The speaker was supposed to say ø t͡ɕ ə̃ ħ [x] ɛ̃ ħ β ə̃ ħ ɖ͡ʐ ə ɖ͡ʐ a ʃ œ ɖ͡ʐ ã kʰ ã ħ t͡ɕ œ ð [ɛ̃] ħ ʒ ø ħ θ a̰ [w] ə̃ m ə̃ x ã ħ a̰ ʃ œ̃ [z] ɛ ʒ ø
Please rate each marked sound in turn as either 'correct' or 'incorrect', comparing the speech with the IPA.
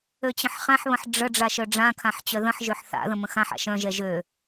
incorrect, incorrect, incorrect, incorrect

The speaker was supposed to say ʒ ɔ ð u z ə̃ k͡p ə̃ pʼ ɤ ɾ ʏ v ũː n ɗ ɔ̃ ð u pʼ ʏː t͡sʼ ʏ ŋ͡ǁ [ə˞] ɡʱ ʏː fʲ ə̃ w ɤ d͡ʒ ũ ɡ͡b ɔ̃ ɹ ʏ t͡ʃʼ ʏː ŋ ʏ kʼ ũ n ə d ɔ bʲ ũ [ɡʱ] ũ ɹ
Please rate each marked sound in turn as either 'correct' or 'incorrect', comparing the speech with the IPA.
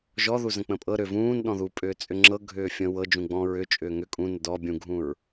incorrect, correct

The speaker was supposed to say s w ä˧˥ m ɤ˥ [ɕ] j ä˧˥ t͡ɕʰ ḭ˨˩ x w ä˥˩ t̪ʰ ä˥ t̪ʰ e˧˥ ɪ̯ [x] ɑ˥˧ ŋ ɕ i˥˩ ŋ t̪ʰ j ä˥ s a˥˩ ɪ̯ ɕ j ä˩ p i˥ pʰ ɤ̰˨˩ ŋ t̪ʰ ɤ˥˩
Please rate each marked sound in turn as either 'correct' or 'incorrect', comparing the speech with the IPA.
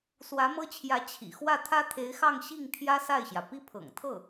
incorrect, correct

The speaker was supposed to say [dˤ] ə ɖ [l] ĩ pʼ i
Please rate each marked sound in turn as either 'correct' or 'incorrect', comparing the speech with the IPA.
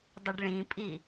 correct, incorrect

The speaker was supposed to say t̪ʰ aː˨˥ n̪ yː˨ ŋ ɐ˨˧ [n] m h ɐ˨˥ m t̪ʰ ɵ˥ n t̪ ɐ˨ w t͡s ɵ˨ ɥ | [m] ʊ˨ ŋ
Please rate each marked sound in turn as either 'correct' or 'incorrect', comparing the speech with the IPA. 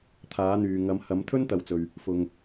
incorrect, incorrect

